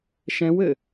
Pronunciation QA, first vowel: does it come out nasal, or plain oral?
nasal